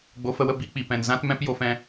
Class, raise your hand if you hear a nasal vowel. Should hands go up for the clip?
yes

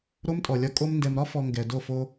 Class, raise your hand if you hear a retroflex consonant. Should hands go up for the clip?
no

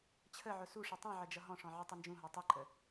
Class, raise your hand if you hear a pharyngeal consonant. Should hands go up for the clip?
yes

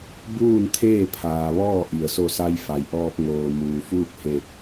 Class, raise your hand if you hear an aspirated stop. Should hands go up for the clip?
yes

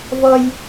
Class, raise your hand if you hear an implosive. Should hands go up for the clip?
no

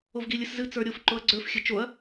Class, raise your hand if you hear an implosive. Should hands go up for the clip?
no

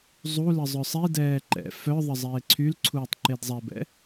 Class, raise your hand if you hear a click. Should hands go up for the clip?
yes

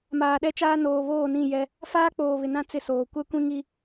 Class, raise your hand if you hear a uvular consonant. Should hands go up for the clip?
no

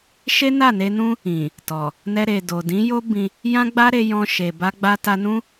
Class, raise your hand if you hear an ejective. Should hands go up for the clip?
no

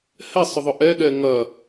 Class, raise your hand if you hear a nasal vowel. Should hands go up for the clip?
no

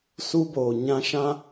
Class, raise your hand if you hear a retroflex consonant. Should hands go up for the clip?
no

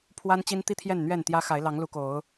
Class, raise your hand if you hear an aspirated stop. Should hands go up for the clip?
yes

